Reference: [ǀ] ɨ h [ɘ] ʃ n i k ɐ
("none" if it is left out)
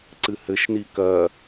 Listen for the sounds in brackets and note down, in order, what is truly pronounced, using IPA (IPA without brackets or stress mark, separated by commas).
ǀ, ɘ